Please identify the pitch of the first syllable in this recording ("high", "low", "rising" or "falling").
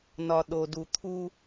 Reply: low